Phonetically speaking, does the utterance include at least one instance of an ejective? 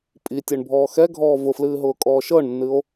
yes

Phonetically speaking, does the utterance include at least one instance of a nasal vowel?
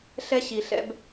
no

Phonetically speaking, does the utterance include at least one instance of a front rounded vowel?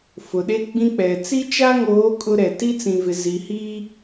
no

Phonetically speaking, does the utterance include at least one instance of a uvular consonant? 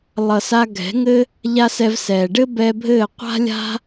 yes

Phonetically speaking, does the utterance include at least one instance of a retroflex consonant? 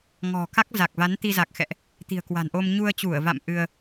no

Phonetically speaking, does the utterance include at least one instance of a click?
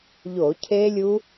no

